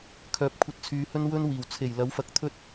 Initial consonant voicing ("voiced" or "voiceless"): voiceless